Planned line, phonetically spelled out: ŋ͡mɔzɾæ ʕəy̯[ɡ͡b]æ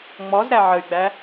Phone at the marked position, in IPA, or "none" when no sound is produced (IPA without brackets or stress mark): ɡ͡b